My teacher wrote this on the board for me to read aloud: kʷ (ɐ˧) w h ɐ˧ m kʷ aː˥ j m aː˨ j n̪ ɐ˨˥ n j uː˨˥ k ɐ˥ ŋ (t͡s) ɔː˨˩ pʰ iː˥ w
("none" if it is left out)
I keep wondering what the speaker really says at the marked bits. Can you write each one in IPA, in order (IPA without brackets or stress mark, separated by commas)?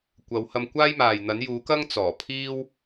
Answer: ɐ˨˧, t͡s